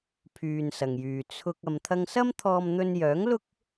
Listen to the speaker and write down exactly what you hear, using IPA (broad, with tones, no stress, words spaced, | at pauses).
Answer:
pʰyː˨nsɐ˨˩ŋjyː˨˩ t͡sʰʊ˧k̚ ɐ˨mt̪ʰɐ˧ŋsɐ˥m t̪ʰɔː˧m n̪ɵ˧njœː˨˥ŋ lʊ˥k̚